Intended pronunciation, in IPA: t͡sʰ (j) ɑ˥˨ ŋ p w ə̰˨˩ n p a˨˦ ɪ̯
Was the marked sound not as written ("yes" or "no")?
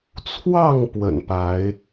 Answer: yes